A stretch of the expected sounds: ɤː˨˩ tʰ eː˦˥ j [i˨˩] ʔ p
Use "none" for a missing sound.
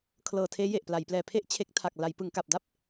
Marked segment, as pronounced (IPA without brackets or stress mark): e˨˩